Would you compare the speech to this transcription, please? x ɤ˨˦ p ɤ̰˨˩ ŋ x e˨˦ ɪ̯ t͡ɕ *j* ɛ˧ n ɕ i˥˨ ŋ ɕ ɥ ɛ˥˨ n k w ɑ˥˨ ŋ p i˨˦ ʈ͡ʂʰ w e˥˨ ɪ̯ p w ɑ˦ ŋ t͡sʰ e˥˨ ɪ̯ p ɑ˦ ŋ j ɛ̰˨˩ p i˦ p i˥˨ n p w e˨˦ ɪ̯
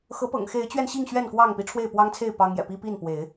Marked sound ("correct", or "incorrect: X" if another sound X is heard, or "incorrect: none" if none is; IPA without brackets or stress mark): incorrect: ɥ